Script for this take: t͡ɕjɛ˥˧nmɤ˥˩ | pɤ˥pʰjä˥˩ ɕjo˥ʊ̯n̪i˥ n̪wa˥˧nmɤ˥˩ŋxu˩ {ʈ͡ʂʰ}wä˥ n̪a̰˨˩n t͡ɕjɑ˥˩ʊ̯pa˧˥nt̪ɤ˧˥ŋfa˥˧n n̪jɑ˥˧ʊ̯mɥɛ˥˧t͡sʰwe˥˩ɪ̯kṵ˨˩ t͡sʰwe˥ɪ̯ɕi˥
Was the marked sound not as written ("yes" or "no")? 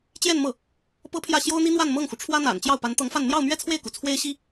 no